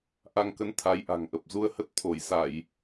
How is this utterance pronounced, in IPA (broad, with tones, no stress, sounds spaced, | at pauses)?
ʔ a˧ ŋ k ə˧ n t̪ʰ a˨˦ j ʔ a̤˨˩ ŋ ʔ ə˨˩ p̚ z u˧ ə̯ h ə˦˥ t̚ t̪ʰ o˧˩ j s a˧˩˨ j